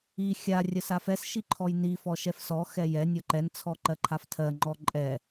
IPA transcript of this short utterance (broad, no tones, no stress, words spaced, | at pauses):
i xʲa rʲɜsafɛs ʃiǃʰɔjni fɔʃɛfsɔ xɛjɛ nʲɔǃɛn t͡sʰɔǃɜǃʰaftʰɜ ŋ͡ǃɔǃʼɛ